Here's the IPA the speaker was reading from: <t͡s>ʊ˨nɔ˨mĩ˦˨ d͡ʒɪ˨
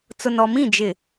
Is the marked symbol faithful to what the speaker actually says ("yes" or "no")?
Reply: yes